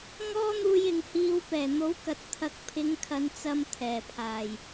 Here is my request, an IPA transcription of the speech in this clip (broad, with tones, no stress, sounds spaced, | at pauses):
ŋ ɔː˥ n̪ uː˧ j ɪ˨ ŋ h iː˧ w p ɛː˨˩ n̪ o˨˥ w k ɐ˨˥ t̚ t̪ʰ ɐ˧ k̚ pʰ ɪ˨˧ ŋ kʰ ɐ˨˧ n t͡s ɐ˧ m t̪ʰ ɛː˨˩ pʰ aː˨˩ j